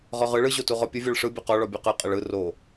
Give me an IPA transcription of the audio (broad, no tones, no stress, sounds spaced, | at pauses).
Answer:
ʁ ɔ ʁ ɯ ɭ ɯ ʑ o t u ʁ ɔ pʲ ə vʲ ɔ ɭ ʂ ɯ bʲ ɔ q ɔ ɭ ɔ bʲ o q ɯ qʼ ə ɭ ɯ r o